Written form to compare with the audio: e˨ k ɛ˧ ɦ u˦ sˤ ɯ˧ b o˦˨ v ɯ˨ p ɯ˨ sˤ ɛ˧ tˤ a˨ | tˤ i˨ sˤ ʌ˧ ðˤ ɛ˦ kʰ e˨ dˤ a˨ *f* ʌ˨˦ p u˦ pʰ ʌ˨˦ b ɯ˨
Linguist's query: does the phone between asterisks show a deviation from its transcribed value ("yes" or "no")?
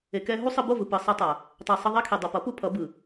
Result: yes